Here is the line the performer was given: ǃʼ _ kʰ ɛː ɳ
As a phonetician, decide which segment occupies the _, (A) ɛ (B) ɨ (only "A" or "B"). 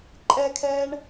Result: A